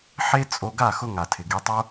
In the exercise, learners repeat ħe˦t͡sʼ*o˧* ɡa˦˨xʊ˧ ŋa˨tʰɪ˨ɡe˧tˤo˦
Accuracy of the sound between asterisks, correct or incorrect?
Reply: correct